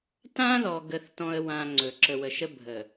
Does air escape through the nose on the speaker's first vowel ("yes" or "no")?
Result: yes